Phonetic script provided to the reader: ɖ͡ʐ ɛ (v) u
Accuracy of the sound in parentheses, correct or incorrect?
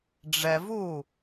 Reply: correct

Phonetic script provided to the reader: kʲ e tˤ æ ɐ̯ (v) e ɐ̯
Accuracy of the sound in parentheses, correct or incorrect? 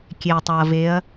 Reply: correct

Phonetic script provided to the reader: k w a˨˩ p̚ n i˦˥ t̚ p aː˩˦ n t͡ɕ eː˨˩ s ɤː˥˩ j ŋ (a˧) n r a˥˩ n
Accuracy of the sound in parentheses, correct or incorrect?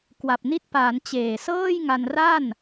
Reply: correct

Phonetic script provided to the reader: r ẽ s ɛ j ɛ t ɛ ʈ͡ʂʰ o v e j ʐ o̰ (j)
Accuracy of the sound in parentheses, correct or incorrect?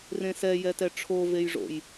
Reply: correct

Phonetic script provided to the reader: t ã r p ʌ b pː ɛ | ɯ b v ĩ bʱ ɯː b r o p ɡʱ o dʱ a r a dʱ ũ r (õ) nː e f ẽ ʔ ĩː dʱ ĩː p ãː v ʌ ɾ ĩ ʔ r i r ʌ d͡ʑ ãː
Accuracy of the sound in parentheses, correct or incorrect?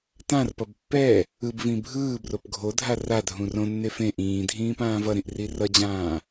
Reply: correct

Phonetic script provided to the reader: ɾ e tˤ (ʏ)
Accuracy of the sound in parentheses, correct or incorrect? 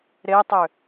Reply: correct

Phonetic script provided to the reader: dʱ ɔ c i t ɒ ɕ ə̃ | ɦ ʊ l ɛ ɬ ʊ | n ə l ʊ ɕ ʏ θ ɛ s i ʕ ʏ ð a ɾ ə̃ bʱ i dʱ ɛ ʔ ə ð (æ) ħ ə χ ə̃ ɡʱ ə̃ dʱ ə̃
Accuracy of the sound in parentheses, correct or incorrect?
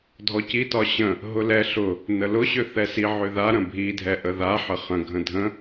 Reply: incorrect: a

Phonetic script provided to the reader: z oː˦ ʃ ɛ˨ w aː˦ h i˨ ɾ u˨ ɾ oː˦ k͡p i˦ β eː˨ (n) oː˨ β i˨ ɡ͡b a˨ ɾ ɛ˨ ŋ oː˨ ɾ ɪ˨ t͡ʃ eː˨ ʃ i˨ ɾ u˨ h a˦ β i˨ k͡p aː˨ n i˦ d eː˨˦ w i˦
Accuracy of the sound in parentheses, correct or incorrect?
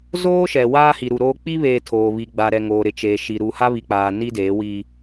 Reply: incorrect: tʰ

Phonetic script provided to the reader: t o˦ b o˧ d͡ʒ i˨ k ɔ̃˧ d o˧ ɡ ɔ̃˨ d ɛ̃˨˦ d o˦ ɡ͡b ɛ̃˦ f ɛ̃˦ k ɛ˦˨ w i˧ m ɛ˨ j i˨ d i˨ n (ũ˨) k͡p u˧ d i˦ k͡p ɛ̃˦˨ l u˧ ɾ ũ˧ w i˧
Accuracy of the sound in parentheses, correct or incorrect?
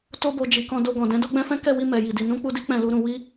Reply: incorrect: ũ˨˦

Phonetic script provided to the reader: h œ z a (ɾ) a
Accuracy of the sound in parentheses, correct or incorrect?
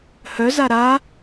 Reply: correct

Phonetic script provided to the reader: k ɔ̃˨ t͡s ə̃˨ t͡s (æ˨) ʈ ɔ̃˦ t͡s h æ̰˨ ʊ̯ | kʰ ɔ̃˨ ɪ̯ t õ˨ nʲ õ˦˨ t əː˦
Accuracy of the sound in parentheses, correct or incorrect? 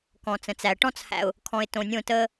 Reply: correct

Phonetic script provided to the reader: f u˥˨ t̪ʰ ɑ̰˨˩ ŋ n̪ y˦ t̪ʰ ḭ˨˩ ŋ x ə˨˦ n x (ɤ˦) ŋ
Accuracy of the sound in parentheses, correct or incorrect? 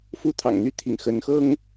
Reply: correct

